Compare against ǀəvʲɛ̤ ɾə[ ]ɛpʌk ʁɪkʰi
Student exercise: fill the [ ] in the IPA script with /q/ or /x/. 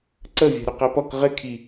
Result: q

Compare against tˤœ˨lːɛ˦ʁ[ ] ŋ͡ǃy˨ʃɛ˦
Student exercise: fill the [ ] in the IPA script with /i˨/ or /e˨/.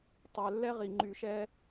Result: i˨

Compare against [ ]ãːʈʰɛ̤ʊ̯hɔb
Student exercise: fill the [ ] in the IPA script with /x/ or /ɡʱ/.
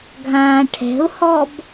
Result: ɡʱ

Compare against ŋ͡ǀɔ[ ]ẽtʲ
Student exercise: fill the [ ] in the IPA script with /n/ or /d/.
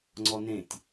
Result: n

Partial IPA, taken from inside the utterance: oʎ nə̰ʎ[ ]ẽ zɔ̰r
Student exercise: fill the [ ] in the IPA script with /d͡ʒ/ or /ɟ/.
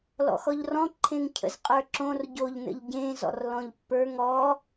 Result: ɟ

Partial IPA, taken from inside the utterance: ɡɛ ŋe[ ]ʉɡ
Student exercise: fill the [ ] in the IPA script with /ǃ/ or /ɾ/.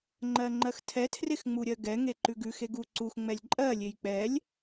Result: ǃ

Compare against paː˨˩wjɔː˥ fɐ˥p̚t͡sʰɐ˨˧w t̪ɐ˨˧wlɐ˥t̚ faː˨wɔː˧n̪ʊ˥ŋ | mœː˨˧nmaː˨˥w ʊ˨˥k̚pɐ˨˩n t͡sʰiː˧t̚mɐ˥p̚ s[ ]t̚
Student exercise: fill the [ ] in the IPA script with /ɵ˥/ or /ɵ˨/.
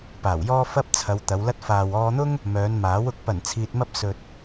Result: ɵ˨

